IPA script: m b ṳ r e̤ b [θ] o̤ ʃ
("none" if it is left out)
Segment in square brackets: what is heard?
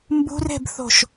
θ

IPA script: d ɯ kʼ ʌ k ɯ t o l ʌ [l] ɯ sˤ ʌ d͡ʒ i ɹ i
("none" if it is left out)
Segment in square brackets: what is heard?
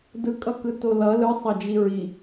l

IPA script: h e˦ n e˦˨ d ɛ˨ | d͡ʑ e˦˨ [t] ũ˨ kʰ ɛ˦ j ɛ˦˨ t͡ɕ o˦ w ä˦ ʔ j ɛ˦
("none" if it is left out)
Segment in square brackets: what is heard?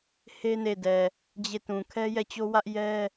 t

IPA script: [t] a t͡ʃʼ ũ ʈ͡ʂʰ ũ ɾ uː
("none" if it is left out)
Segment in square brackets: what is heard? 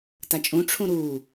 t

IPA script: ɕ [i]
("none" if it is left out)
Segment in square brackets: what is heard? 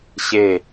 e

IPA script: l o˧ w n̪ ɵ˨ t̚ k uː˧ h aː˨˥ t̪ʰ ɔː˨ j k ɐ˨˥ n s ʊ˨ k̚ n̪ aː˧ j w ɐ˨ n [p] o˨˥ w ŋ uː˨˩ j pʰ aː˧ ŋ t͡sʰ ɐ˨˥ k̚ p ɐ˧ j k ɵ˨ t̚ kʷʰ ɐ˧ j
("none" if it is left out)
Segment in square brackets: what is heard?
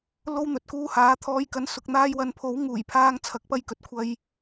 pʰ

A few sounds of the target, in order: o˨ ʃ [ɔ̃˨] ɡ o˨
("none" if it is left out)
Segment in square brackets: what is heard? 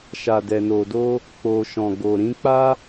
ɔ̃˨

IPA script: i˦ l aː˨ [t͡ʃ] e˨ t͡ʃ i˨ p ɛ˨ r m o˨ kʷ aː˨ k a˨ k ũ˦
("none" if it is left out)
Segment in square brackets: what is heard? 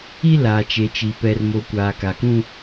t͡ʃ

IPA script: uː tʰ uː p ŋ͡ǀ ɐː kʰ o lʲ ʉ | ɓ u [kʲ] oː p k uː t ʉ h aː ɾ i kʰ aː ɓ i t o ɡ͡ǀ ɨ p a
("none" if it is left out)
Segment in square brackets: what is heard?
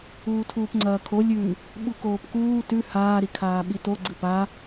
k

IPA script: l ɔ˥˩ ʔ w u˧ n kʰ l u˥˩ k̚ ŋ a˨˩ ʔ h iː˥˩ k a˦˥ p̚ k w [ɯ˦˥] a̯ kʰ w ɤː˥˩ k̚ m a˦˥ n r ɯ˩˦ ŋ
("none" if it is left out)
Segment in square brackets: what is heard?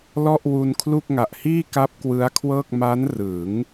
ɯ˦˥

